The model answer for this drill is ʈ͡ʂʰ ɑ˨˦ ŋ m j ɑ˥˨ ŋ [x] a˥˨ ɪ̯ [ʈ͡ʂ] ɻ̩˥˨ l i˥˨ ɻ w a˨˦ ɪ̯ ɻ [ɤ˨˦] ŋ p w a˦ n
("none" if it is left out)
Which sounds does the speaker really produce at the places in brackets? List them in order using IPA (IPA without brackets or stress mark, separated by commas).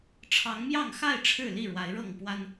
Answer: x, ʈ͡ʂʰ, ɤ˥˨